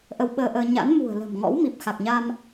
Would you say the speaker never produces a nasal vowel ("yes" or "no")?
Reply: yes